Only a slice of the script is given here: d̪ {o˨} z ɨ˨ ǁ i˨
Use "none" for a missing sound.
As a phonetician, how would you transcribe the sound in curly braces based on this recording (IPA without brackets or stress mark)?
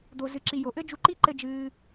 o˨